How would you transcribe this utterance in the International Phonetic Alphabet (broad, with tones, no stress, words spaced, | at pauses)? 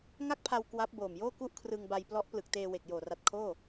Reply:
ŋa˥˩k̚pʰa˧w kwa˦˥p̚boː˨˩mjoː˥˩ ku˥˩ʔkʰrɯ˧ŋba˧j plɔ˦˥ʔplɯ˨˩k̚teː˧ we˨˩k̚joː˨˩ra˨˩t̚kʰoː˥˩